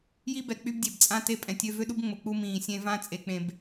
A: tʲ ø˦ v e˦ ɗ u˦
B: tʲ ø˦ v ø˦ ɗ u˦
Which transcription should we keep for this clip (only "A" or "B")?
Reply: B